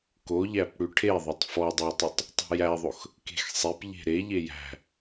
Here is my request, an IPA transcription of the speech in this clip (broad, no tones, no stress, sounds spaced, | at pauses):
k o ʎ æ p ɽ ʉ ʈʰ e ðˤ o tˤ f ɔ dˤ æ tˤ ʉ tˤ | tˤ e̤ j æ ðˤ o x | k e̤ x sˤ e p ʎ e̤ ɾ e ʎ e j æ̤